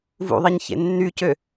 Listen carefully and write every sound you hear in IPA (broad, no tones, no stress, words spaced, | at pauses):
vṵðˤiɲ çḛnːycø